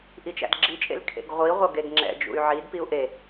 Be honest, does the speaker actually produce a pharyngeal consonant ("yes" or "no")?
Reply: yes